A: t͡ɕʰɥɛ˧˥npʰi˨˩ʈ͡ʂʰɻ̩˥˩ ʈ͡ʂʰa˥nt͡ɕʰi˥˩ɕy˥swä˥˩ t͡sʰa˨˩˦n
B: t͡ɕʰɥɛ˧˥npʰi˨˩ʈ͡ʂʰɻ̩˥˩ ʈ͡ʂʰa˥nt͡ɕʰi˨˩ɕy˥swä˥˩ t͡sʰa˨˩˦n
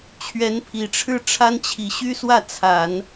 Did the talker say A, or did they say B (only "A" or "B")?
B